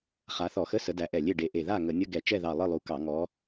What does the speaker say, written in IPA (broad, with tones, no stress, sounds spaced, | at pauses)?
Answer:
χ a˨˦ θ ɔ˧˩˧ x ə˧˥˧ s ə˨˦ d æ˨˦ ʔ ɛ˧˩ lʲ e˥˨ ɖ e˨˦ ʔ e˧˩ ð a˥˨ ŋ ə˧˩˧ nʲ ə˧˥˧ ɡ ɛ˧˩˧ t͡ʃ ɛ˥˨ ð ɑ˧˩ lˠ ɯ˥˨ lˠ u˨˦ k ɑ˧˩˧ ŋ ɔ˨˦